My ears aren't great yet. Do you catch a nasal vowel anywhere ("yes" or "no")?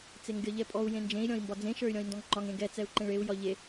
yes